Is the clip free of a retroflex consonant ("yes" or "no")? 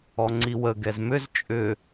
yes